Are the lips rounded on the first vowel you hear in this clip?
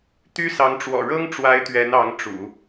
yes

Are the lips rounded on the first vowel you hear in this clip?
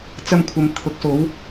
no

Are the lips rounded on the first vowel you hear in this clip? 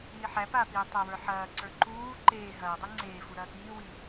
no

